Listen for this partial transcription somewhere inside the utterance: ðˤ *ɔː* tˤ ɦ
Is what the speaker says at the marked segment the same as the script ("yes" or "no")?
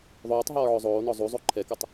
no